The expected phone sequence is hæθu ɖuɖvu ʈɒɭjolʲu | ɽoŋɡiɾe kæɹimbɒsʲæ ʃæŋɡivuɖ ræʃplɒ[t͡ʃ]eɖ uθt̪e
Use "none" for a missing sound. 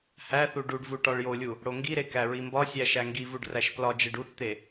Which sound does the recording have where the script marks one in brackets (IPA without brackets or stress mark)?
d͡ʒ